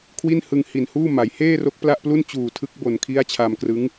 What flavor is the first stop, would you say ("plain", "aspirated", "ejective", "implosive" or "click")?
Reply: aspirated